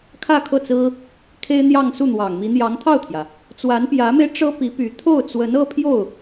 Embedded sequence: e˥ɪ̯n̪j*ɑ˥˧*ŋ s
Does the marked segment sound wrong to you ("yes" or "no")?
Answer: no